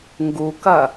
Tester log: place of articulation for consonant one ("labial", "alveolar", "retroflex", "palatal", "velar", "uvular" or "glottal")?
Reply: velar